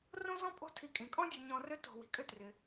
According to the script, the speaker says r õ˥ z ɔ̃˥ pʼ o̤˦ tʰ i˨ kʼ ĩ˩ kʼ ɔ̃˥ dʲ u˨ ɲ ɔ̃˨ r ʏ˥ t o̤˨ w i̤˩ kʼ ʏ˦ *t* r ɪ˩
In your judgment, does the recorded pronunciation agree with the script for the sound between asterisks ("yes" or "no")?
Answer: yes